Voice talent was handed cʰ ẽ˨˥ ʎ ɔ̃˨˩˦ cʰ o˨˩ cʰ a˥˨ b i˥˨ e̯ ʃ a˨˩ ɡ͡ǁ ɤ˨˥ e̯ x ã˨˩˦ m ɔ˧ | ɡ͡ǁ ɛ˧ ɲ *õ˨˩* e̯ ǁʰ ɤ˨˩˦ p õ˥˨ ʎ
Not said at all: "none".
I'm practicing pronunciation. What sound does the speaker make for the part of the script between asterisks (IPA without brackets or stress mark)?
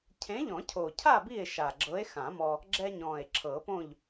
ɔ̃˨˩